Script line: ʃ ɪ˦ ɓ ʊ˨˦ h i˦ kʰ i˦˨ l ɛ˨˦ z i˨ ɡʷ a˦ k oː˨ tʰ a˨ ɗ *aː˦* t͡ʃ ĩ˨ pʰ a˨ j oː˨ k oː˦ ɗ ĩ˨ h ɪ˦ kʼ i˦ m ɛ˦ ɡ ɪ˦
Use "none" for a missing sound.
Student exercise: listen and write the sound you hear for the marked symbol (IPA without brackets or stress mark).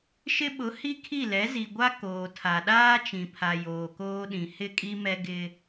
aː˦